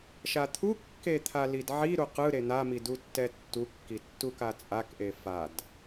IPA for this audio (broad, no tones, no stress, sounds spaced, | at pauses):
ʃ a t̪ʰ u kː e t̪ʰ a l i d ʕ i ɾ u q ɯ ɾ e n̪ a m i d u tː ɛ tː u kː i tː u k a t͡sʼ a k ʔ e f a d